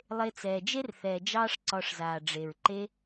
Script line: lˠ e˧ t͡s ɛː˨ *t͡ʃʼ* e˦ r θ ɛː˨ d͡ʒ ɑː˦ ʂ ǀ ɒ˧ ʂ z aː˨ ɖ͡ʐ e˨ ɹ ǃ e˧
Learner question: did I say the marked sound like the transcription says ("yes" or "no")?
no